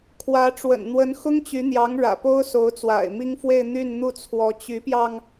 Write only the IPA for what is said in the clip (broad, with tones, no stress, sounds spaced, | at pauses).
kʰ w ä˧˥ ʈ͡ʂ w ə̰˨˩ n n̪ w ə˧˥ n x ʊ˥ ŋ t͡ɕ y˧˥ n̪ j ɑ˧˥ ŋ ɻ ä̰˨˩ p o˥ ʊ̯ s o˧˥ ʊ̯ t͡s w a̰˨˩ ɪ̯ m i˥ ŋ f w e˥˧ ɪ̯ n̪ y˥˧ n n̪ u˥˩ t͡sʰ w ɔ˧˥ t͡ɕ y˧˥ p j ɑ˧ ŋ